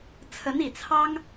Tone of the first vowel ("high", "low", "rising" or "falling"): rising